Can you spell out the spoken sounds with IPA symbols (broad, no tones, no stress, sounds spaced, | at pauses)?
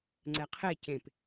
ŋ͡ǀ ɛ qʰ e c ẽ p